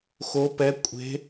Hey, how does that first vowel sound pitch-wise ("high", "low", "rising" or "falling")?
rising